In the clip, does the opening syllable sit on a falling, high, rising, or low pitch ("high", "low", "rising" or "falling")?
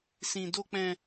high